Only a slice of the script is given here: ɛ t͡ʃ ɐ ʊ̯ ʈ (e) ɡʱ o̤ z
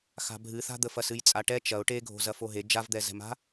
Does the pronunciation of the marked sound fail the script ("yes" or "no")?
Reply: no